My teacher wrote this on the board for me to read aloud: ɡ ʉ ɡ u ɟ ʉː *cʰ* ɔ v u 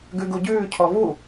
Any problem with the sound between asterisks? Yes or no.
no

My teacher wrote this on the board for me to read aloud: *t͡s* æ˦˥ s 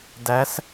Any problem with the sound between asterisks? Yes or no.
yes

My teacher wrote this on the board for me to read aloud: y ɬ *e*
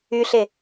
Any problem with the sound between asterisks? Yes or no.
no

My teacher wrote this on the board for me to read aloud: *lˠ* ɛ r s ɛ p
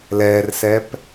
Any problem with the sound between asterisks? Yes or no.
yes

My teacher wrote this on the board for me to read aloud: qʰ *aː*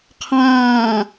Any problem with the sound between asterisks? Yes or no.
yes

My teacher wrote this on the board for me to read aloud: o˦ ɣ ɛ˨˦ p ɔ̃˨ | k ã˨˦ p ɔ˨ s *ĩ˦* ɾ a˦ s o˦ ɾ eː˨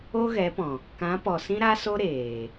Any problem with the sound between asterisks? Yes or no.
no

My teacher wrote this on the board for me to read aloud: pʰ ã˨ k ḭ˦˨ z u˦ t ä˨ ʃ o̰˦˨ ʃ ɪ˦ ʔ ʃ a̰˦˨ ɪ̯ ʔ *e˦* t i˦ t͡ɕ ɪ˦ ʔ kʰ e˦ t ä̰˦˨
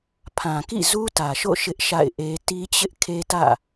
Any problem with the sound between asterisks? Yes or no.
no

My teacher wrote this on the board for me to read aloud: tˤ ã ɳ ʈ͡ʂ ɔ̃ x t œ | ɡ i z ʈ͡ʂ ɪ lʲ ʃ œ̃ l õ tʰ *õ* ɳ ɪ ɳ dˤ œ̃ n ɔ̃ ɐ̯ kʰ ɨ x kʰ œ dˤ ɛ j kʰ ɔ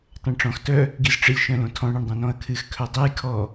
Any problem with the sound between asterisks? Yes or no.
yes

